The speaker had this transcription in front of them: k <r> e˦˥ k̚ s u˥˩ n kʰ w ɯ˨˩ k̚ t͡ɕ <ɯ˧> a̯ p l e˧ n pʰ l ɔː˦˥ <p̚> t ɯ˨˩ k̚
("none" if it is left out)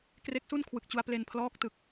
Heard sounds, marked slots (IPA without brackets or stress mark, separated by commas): r, u˧, k̚